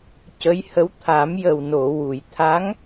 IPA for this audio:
cə˧˥jhə˧˥w t̪ʰa˨˩˦mjə˨˩w no˨˩˨wu˨˩˨j t̪ʰa˧˥ŋ

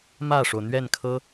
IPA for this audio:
mä˥˩ʂo˩ʊ̯n̪ɥɛ˥˩nkʰɤ˥

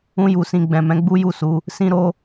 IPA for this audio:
ũ˧ju˨sĩ˨ ɡ͡bɛ̃˨ mɛ̃˨˦ɡ͡bu˦ju˦˨su˨˦ | sĩ˦ɾo˦

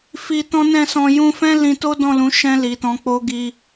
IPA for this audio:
fi˧tɔ̃˦nɛ̃˦˨sɔ̃˧ jũ˧fɛ̃˦ lĩ˧to˦ dɔ̃˦˨lũ˨˦ʃɛ̃˧ li˨tɔ̃˨˦k͡po˦ ɡi˧

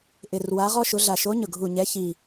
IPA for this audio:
ʔɪ˨˩rwa˨˦ʁɔ˦ʃʊ˨˦ ɮa˨˩ʃo˨˦ɲʊ˨˩ɡʱu˨˩ ɲɛ˨˦çi˨˩

